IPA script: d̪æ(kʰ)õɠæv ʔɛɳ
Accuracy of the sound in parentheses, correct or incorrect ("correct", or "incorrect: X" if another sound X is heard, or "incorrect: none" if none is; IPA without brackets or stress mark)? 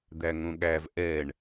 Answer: incorrect: ŋ